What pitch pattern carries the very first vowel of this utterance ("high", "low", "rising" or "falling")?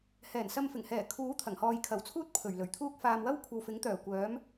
low